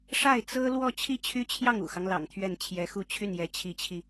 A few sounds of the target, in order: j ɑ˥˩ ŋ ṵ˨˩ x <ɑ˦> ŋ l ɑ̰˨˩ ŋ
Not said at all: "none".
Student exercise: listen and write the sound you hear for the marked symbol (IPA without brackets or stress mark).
ɑ˦